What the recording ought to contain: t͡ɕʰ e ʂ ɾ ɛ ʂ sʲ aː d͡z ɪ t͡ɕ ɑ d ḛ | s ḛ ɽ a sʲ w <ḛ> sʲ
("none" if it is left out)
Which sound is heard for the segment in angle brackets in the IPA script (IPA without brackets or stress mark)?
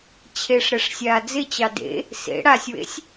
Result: ḛ